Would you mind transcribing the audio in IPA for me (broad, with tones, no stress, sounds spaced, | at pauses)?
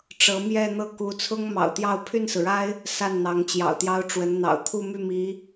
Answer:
ʈ͡ʂ ɤ˧˥ m j ɛ˥˧ n̪ ɤ˥˩ k u˧˥ t͡sʰ ʊ˥ ŋ m ɑ̰˨˩ ʊ̯ t̪ j ɑ˥˧ ʊ̯ pʰ y˥˩ n s ɹ̩˩ ɻ a˥ ɪ̯ | s a˥˩ n n̪ ɑ˧˥ ŋ t͡ɕ j ɑ̰˨˩ ʊ̯ t̪ j ɑ˥ ʊ̯ ʈ͡ʂ w ə˧˥ n n̪ ɑ̰˨˩ ʊ̯ t̪ʰ u˥˧ m y˥˩ m i˧˥